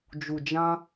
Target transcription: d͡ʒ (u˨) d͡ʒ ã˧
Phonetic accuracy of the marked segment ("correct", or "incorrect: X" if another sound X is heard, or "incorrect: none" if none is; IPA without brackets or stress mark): correct